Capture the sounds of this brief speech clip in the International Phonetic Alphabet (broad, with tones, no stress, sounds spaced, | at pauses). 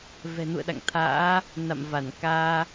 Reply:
v ɛ̤˨˩ n ṵ˧˨ ə̯ ɗ a̰˧˨ ŋ t̪ʰ a̰ː˧˥ | n a̰˧˨ m v a˧˩ n k aː˧